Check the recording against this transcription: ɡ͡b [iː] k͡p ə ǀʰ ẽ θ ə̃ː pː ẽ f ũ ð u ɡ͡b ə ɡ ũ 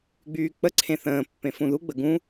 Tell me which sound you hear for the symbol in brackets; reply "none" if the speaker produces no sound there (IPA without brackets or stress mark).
yː